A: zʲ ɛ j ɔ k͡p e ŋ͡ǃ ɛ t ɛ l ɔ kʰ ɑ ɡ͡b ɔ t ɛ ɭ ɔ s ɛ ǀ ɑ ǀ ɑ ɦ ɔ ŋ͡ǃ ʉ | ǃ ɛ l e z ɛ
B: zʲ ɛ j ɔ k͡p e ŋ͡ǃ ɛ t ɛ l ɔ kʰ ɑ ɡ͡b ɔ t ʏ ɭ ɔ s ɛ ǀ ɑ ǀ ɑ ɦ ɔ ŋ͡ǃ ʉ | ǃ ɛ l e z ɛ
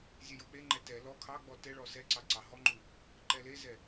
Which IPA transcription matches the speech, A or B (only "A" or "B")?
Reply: A